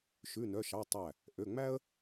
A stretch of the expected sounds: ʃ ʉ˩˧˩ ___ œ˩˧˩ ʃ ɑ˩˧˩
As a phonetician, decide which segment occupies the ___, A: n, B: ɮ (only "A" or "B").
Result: A